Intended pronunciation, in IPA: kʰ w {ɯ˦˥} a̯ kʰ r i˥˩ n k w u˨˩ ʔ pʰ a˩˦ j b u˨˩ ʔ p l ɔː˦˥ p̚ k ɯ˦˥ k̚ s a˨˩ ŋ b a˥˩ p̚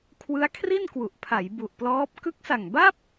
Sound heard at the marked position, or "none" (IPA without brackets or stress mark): ɯ˦˥